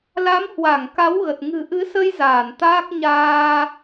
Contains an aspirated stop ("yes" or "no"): no